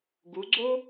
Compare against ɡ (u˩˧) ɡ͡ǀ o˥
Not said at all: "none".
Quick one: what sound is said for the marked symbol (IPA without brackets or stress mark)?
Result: u˩˧